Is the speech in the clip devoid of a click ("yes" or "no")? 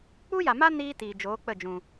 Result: yes